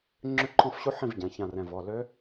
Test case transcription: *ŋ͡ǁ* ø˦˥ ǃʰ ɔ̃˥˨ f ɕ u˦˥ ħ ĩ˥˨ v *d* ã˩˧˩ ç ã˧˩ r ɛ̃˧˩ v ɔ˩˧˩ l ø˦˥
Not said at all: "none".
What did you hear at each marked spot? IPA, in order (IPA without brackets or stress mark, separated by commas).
ŋ͡ǁ, ɟ